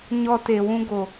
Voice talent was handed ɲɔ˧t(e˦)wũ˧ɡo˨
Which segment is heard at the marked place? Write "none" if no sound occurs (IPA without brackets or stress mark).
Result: e˨